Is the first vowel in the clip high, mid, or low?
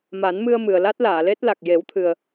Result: low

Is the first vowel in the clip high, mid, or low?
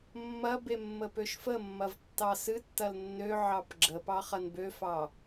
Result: low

